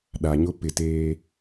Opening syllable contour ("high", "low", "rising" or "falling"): low